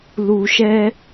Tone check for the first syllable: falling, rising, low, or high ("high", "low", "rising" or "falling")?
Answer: low